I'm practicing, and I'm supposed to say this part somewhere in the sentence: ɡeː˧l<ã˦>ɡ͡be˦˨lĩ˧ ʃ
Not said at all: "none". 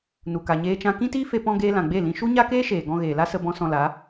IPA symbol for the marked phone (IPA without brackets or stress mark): ã˨